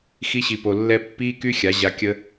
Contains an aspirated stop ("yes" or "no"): no